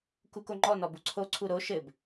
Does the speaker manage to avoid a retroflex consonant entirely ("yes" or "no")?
yes